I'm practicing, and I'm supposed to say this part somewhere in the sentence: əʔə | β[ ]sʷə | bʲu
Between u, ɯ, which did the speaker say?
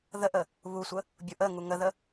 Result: u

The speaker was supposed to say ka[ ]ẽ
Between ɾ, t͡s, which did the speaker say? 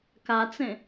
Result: t͡s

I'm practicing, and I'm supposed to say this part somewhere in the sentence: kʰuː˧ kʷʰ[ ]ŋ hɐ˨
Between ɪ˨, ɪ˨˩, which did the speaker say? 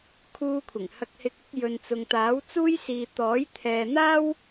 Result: ɪ˨˩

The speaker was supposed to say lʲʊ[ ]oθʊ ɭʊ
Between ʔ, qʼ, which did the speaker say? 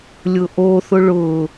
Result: ʔ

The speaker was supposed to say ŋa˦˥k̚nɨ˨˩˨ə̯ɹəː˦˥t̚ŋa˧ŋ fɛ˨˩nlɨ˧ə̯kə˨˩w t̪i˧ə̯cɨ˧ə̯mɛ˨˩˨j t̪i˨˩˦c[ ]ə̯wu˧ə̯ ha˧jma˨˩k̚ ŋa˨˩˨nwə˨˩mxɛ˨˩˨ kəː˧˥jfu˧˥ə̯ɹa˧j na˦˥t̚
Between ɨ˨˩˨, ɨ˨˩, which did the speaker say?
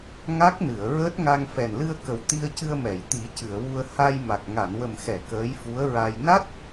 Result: ɨ˨˩˨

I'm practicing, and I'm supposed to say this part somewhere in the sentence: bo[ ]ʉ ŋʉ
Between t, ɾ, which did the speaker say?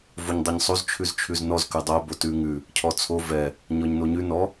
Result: t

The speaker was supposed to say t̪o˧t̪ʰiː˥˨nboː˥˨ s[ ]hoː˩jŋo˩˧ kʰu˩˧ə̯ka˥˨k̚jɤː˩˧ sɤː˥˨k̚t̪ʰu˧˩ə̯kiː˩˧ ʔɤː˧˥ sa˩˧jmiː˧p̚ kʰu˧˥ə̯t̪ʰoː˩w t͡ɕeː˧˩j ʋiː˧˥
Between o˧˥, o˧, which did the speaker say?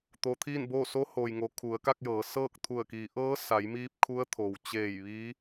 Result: o˧˥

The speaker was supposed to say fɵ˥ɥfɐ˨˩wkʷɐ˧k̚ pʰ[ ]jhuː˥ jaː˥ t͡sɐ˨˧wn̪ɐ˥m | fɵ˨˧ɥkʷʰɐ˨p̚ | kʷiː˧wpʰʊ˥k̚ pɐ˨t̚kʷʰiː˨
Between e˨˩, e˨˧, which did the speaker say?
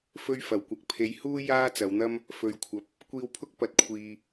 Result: e˨˧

